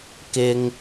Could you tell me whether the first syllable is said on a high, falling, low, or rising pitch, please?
high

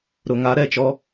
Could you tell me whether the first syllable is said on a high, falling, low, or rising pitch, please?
low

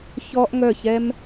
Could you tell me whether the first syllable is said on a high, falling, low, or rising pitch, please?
high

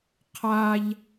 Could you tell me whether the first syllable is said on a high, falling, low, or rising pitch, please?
high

